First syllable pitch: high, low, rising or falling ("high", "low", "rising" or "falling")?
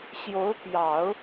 rising